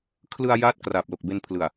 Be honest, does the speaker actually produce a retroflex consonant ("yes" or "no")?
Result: no